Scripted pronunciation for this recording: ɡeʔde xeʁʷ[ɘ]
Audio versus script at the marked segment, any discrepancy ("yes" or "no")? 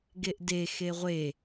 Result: yes